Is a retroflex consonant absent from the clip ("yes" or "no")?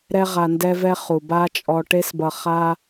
no